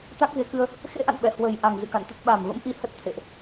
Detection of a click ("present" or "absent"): absent